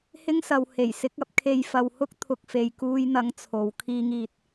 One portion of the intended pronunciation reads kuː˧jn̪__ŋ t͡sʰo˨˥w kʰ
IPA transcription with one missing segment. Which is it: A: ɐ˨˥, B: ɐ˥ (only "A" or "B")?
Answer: A